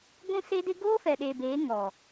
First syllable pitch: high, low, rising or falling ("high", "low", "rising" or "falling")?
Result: high